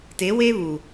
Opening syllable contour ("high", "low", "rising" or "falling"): rising